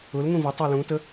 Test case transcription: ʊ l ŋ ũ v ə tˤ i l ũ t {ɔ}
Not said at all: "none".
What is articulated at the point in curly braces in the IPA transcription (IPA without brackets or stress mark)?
ə